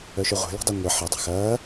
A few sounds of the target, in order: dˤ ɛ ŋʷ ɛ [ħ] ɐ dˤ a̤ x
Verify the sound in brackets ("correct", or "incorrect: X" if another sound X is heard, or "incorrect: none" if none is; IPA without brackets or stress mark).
correct